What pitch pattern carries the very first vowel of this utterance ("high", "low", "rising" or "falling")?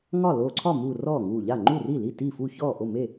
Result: falling